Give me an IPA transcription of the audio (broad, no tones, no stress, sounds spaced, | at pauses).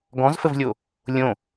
ɡ ɔ̃ z f ə v lʲ o | lʲ õ